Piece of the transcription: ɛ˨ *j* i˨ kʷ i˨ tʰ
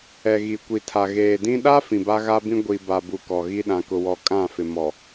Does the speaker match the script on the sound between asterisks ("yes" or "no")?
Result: no